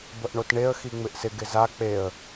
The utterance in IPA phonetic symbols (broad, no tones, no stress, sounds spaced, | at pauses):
b ə ʔ ɳ o t ɳ e ə̯ x i ŋ͡m ɪ ʔ s ɪ ɡ ɪ z a k͡p e ə̯